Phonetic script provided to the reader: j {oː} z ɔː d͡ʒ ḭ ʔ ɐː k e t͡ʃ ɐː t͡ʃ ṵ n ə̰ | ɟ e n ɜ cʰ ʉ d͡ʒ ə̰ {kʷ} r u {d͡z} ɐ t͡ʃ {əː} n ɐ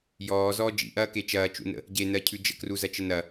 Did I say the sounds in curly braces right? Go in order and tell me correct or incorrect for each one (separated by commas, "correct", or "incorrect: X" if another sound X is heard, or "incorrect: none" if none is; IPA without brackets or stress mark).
incorrect: ɔː, incorrect: k, incorrect: z, incorrect: ə